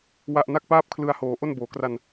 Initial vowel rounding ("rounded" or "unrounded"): unrounded